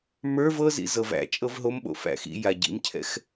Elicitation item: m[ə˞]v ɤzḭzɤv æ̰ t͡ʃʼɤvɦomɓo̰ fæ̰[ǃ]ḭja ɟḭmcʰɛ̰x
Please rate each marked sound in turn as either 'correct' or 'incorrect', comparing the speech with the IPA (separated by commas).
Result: correct, incorrect